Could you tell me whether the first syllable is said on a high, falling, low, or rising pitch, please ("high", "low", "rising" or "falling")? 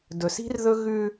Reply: low